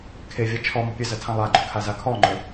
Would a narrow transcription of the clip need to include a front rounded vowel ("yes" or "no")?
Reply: no